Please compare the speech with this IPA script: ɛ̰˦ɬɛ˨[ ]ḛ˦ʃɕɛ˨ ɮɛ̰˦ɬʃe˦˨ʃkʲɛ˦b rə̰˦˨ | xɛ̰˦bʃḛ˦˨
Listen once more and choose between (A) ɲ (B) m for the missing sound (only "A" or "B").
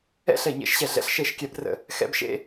A